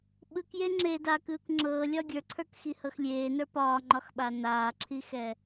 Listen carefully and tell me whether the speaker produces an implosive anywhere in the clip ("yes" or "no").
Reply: yes